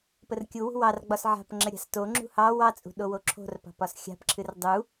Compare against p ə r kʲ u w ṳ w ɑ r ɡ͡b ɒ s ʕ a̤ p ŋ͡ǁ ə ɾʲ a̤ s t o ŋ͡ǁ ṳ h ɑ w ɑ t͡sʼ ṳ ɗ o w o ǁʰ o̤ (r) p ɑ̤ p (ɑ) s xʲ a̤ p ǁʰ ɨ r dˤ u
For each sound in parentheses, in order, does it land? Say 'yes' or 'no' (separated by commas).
yes, no